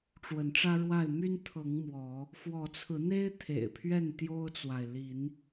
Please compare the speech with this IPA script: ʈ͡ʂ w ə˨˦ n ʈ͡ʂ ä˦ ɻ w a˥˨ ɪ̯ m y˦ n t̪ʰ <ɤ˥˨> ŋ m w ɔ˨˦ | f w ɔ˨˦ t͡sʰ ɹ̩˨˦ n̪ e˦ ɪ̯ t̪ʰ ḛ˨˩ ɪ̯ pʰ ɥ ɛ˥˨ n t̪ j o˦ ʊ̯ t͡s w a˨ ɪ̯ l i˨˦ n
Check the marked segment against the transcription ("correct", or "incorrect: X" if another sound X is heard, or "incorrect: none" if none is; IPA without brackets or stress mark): incorrect: ɤ˨˦